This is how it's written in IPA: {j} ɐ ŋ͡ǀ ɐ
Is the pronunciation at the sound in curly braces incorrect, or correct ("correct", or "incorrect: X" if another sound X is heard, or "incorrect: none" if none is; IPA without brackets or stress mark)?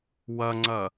incorrect: w